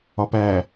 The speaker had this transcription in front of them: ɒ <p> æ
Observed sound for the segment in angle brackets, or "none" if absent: p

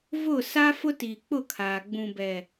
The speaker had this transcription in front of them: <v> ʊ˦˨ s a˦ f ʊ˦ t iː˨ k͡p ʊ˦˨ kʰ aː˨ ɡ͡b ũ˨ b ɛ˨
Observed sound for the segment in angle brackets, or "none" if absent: v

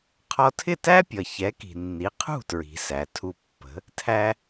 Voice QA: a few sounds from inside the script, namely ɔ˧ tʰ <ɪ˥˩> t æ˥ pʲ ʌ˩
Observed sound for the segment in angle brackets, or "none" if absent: ɪ˥˩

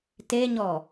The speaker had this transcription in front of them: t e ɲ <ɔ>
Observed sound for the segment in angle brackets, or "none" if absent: ɔ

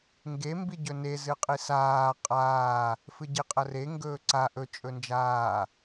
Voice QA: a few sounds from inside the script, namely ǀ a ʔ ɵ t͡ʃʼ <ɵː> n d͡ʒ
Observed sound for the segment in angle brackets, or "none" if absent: ɵ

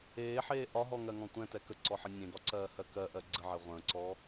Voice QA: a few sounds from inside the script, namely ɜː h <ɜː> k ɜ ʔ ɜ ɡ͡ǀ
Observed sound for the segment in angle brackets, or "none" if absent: ɜ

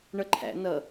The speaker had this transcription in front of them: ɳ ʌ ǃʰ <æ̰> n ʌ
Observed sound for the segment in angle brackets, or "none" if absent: æ̰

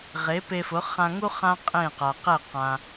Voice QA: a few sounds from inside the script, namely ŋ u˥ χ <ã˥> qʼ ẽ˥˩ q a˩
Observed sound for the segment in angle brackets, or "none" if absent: ã˥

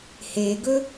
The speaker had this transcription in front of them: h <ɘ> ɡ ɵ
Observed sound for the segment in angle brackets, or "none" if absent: e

